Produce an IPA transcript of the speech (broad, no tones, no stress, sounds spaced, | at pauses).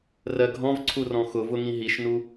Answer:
r ɜ ɡʱ ɔ̃ v ǀʰ u r ɔ̃ x ʊ v ʊ ŋ ĩ ɦ i ʃ n u